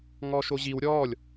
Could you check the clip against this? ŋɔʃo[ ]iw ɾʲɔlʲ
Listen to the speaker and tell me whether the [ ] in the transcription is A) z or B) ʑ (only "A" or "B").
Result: B